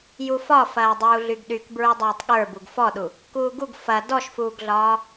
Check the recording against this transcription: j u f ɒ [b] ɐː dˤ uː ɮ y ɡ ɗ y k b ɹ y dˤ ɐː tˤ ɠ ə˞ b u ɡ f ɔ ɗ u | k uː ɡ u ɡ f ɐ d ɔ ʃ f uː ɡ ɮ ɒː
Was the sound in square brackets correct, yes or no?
no